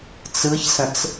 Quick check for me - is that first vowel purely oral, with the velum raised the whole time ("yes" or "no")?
yes